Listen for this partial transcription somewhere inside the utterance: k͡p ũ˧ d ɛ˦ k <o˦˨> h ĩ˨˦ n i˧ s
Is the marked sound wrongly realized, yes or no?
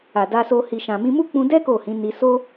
no